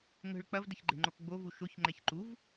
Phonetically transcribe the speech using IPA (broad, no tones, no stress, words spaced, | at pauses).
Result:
ŋə̤ɭ k͡pɐvdəç ɡ͡ǃe̤ŋ͡ǃokɡ͡bovu ʃoçŋ͡ǃɛç ǃuv